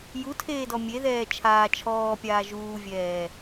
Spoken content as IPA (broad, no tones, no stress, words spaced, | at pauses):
jutʰeːdɔ mʲeðɛː t͡ʃʰaː t͡ʃʰɔːpʲaː ʒuːvʲɛː